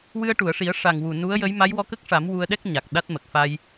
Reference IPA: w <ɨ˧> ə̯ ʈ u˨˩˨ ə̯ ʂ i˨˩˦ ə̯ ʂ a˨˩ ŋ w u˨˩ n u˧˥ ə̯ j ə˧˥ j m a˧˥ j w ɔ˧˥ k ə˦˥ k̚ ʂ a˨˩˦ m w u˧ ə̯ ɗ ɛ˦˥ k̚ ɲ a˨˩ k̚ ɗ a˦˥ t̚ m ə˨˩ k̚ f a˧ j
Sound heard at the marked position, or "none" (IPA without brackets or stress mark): ɨ˧